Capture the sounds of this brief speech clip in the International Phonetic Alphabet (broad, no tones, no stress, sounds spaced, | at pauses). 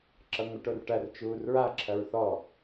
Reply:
ǁ ʌ ŋʷ ə ʈ o r ʈ ɐ r t͡ʃ uː r ɹ a ǁʰ ɐ ɹ θ ɔ